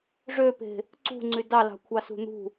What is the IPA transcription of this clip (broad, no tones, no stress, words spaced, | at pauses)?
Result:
ʐøpe̤ | ǀṳŋ͡ǀy dɑlɑ̤kʷʰɑsṳ n̪ṳ